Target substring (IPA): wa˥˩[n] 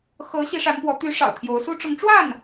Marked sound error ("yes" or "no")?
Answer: no